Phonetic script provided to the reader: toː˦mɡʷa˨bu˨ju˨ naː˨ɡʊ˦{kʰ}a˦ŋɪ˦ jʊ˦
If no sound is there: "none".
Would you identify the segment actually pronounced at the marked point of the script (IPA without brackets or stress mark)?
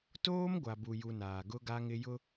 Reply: ɡ